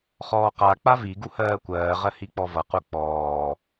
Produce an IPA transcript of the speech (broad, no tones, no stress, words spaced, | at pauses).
χɔːqa k͡pavi ɡuhɜːkʷɜːʁɜ hik͡pɔvʌ quk͡pɔː